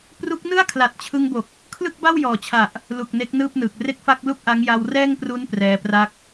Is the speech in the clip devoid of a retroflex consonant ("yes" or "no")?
yes